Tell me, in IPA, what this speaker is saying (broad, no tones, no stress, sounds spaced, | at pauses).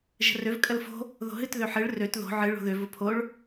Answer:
ʒ ə̤ r ø v kʼ ə l f o̤ | ð o̤ ɦ ɨ t ð ø ħ ɨ ɭ r ø t ð o̤ ʕ ɨ ɭ o̤ ð ø v ʊ pʰ o ɭ